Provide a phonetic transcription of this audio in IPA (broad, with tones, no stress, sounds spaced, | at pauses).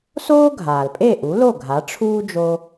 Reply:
s oː˥ ɡʱ aː˩ l pʼ e˥˩ ʔ u˩˥ l o˥˩ ɡʱ a˩˥ ʈ͡ʂʰ uː˥ d͡ʒ o˧